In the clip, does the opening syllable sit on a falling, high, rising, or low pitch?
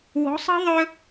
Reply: rising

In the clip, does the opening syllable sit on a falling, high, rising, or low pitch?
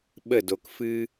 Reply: falling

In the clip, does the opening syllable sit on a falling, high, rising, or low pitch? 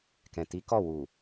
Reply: low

